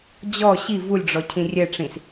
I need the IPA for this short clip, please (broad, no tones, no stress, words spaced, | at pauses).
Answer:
d͡ʑɔ ɕi vulʲɖ͡ʐɔ cʰĩrʲɛʈ͡ʂĩs